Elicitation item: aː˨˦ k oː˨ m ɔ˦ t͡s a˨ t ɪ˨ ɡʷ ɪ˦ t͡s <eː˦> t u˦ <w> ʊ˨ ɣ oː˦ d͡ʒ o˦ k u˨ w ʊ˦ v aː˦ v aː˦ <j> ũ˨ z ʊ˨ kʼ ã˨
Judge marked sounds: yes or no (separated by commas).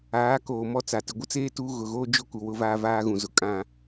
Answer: yes, no, no